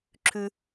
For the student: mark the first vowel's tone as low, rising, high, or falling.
high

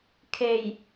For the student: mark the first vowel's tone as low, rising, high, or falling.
low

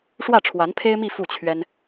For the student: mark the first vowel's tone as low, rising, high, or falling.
falling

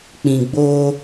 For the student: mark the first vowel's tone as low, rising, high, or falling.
low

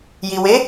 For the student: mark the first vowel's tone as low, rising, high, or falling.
low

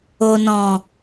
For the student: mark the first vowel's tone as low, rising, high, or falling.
low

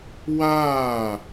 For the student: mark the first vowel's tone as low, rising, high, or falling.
falling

